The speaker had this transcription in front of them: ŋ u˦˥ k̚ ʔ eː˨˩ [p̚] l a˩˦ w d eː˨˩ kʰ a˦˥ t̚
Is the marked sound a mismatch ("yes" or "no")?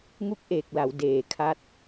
yes